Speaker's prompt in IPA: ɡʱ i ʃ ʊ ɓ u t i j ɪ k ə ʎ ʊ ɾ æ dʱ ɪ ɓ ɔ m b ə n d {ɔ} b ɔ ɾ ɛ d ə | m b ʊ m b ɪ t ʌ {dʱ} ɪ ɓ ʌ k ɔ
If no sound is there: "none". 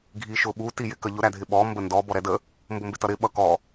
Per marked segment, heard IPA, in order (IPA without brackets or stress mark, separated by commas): ɔ, ɾ